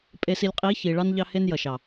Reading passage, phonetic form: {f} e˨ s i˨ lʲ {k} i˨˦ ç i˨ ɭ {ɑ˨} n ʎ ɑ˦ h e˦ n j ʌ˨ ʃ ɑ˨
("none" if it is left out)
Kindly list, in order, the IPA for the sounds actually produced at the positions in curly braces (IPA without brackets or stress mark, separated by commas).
pʼ, qʼ, ɑ˦